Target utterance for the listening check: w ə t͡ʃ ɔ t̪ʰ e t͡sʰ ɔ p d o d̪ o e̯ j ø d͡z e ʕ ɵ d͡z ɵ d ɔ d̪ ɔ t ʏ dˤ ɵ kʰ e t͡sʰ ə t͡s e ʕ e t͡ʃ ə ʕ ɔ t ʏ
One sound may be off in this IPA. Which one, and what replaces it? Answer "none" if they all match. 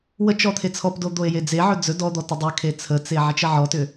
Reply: ø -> e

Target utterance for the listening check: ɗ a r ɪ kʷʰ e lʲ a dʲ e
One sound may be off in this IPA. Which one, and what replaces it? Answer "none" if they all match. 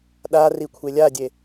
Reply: ɪ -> i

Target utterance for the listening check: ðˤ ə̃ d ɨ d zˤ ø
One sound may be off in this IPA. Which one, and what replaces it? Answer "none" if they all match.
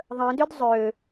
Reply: ɨ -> ʏ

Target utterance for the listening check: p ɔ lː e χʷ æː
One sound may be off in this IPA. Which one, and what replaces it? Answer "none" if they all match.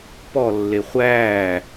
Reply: none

